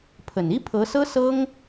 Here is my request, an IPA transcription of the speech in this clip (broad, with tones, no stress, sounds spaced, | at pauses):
pʰ ə˨˩ n i˥ pʰ ɤ˧˥ s ɤ˥ s ɤ˥ ŋ